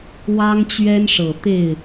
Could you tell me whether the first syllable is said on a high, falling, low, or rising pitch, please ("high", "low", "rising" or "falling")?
high